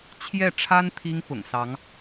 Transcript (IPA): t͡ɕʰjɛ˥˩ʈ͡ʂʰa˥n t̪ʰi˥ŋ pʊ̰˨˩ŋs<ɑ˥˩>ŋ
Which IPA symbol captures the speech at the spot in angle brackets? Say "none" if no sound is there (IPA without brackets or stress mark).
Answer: ɑ˧˥